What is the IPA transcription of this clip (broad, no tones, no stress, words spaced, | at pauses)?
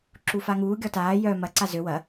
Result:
ǁufaŋuː ɡʲɔtaː jœ mɐ ǀazø wɐ